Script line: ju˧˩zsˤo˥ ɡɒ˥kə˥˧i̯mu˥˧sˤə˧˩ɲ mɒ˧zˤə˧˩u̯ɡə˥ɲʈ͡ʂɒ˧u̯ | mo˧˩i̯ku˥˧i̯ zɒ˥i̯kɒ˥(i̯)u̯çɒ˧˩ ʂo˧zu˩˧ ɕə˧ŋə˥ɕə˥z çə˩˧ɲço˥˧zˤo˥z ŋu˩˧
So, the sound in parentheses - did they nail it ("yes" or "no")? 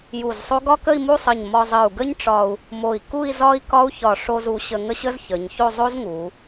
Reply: no